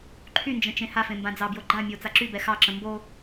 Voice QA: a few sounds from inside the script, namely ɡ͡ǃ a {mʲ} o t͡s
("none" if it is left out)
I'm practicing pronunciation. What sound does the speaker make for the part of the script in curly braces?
mʲ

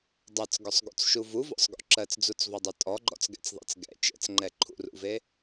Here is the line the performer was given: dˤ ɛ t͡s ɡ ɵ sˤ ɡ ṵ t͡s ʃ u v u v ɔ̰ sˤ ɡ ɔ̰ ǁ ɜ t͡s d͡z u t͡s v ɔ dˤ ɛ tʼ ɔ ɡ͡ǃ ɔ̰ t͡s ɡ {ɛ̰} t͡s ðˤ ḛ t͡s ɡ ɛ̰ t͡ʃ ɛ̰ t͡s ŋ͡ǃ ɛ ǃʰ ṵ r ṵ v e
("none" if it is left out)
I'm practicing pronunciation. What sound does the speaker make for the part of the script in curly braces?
ɛ̰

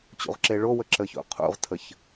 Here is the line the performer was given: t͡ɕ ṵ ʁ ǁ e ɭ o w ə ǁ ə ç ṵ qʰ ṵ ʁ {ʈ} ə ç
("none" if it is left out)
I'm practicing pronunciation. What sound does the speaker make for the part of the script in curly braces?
tʰ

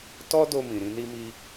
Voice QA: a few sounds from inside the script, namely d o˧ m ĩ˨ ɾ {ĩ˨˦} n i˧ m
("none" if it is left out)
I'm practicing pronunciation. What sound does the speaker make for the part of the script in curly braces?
ĩ˧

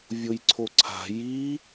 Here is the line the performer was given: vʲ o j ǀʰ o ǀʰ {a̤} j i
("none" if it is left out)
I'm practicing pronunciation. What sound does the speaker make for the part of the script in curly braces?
a̤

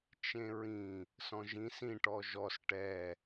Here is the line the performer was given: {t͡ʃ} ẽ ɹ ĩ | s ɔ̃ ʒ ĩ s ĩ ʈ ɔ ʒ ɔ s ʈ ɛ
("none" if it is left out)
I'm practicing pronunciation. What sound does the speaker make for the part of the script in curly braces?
t͡ʃ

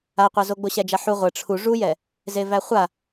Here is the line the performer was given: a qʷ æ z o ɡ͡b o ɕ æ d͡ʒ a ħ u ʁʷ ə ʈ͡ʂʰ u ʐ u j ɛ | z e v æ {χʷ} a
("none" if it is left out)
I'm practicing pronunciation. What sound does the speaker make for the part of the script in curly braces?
χʷ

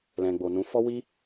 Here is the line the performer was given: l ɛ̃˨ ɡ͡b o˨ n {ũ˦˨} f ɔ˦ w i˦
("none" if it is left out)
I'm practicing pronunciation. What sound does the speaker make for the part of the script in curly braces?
ũ˨˦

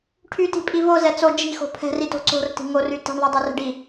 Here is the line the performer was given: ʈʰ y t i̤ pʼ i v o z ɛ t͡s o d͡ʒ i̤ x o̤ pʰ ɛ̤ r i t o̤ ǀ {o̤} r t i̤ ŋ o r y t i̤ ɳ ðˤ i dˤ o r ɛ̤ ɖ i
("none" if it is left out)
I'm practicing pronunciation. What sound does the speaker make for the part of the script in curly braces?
o̤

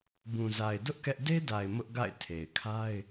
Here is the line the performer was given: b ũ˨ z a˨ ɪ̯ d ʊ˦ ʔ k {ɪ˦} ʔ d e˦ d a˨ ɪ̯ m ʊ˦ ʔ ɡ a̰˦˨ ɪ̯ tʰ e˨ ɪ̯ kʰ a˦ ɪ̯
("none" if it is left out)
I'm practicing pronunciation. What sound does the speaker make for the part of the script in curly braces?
ɛ˦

